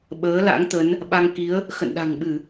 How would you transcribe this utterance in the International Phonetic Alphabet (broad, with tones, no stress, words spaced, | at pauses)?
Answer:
ɓəː˨˦ la̰˧˥ŋt̪ə˨˦n | ɓa˧ŋki˨˦ə̯ | xə̰˧˨nɗa̤˨˩ŋɓɨ˧˩˨